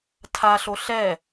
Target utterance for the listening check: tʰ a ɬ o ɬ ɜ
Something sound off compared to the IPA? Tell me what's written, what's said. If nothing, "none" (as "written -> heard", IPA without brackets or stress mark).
ɜ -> ɛ